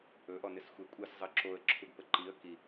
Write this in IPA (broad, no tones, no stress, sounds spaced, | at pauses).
ɵ ʔ ɔ n ɪ s xʷ e kʷʼ ɘ s zˤ ɘ ǁ o ə̯ ǁʰ u ɡ p ə ǃ i ə̯ k i